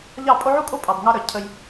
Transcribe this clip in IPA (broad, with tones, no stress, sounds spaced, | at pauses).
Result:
ʎ ɑ˦˨ pʼ o˦ ʕ u˦ kʼ o˦ pʼ ɑ˨ b ŋ ɑ˧ ɾ œ˨ cʰ ə˧ j